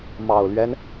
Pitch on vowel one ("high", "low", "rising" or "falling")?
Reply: low